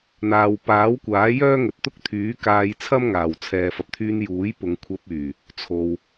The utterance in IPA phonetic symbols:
n̪ aː˨ w p aː˨˥ w kʷ aː˨˥ j œː˥ ŋ ɵ˨ t̚ t̪ ʊ˥ k̚ t̪ʰ yː˨˥ k aː˧ j t͡sʰ ɐ˥ m ŋ aː˨˩ w t͡sʰ ɛː˨ f ɐ˨ p̚ t̪ʰ yː˧ n j uː˨˥ j p ʊ˨˧ ŋ kʷʰ ɐ˧ p̚ yː˨˩ | t͡sʰ o˨ w

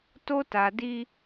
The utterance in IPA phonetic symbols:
t o˦ t a˨ d i˦

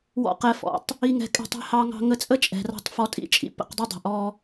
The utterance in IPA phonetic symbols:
w ɔ̰˦ q ɛ˧ f ɔ̰˨˦ tˤ | i˧ ŋ ɛ̤˧ kʼ ɛ̤˧ tˤ ɛ̤˧ h ɑ˧ ŋ ɑ̤˧ ŋ ə˧ t͡sʼ ə˦ t͡ʃʼ ɛ̤˨ r ɑ̤˧ tˤ f ɔ˧ tʼ ḭ˦ t͡ʃʼ ḭ˦ p ə̰˧ q dˤ ɘ˦ dˤ ə̤˨ ʔ ɔ˧

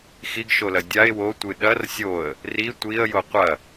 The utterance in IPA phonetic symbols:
x i ɡ ʃ o l ɐ dʲ a ɪ̯ w o tʷ ɨ ɗ ɐ r sʲ o ə̯ | r i tʷ i ə̯ j o qʷ ɐ

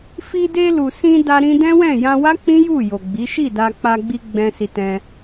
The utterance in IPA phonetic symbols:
f i˧ d e˧ l u˨ s ĩ˧ d a˧ ɾ ĩ˧ d ɛ̃˦ w ɛ̃˦˨ j ã˧ w a˦ k͡p ĩ˦ j u˦˨ j o˨ ɡ͡b i˨˦ ʃ i˦˨ d a˧ k͡p a˧ ɡ͡b i˧ ɡ͡b ɛ̃˧ s i˧ t ɛ̃˧

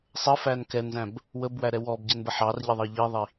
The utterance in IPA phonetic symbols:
sˤ ə f æ n k ɛ n z æ̃ b | w ə b w æ ɾ ɛ w ɔ b ɟ ɛ n b ə ħ ɑ r ʎ ə ðˤ ɜ ʎ i ðˤ i

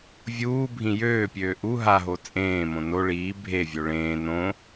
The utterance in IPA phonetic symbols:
vʲ uː bʱ ĩ j øː pʲ øː ʔ u ɦ a ɦ o t͡sʼ ẽː m õ n o ɭ iː bʱ e vʲ o ɭ ẽː n õ

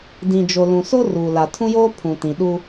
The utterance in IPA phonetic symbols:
d ĩ˨ d͡ʒ o˨ l ũ˨ s o˦ r uː˨ l a˨ tʰ ũ˦ j oː˦ pʰ ũ˨ t ĩ˨ ɗ u˦

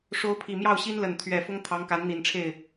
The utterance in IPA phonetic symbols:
ʂ o˧˥ ʊ̯ pʰ i˨˩ m j ɑ˥˩ ʊ̯ ɕ i˥ n l ə˨˩ n t̪ʰ ɥ ɛ˥˩ f ʊ˥ ŋ t̪ʰ ɑ˧˥ ŋ k a˧˥ n n̪ i˨˩ n ʈ͡ʂʰ e˥˩ ɪ̯

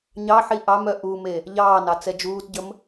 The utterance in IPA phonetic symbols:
ɲ ɑ ħ i ʔ ɑ m œ ʔ u m e | ʎ ɑː n ɑ t͡s ɛ d͡ʒ uː t ɟ ə m

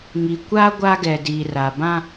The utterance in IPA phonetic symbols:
ŋ i˨ kʷ a˦ ɡʷ a˦ ɡ ɛ˨ d iː˨ r a˨ b ã˦

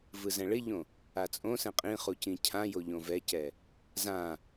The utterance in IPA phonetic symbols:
v ɯ z ɛ̃ ɭ ɪ ʎ õ | a t͡sʼ õ s ɛ̃ qʼ ĩ χ u c ĩ cʰ ã j o ʎ õ v ɛ c ɛ | z ã

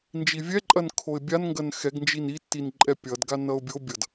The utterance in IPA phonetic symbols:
n d͡ʒ i vʲ ɛ ǃʼ ɐ n kʰ o ɪ̯ bʲ a n ŋ ɡ ɐ n x ɛ ɡ n d͡ʒ i n i tː i n ǃʼ ɛ pʲ ʌ d ɡ a n ʌ ʊ̯ bʲ o bʲ ʌ d

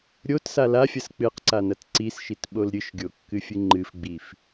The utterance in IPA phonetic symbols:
ɾʲ o t s a l a fʲ ɐ s k͡p ɨ q ǀ a n ɐ t ǀ i s ʃ i t ɓ o l ɾʲ ɨ ʃ ɡʲ o kː ɨ fʲ ɨ ŋ͡ǃ ɨ f ɡ͡b i f

